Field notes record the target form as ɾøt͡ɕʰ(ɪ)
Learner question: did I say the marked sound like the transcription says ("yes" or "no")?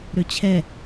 no